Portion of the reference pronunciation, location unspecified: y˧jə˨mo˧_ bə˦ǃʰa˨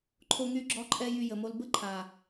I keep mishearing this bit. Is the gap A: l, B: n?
A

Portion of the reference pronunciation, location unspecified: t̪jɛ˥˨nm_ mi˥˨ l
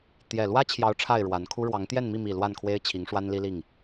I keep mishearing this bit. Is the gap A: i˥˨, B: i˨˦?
A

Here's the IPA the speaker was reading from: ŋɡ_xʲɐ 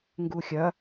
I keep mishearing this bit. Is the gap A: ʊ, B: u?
B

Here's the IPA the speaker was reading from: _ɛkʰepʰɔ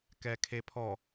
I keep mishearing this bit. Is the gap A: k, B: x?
A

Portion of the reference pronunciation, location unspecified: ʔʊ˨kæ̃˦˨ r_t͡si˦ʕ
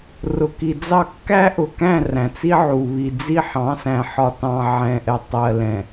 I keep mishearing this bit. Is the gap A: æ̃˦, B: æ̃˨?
B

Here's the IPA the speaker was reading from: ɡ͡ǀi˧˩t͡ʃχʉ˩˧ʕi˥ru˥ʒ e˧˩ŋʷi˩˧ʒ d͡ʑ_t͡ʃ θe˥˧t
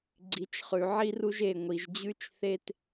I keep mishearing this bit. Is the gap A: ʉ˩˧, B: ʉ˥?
B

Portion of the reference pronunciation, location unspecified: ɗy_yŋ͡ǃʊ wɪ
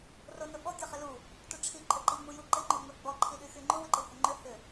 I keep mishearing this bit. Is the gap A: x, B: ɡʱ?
A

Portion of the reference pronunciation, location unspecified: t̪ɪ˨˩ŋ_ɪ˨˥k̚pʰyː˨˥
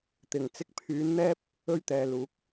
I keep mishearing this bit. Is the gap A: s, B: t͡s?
B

